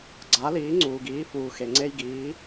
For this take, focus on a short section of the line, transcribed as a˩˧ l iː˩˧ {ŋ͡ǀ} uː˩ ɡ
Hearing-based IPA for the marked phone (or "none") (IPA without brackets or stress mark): ŋ͡ǀ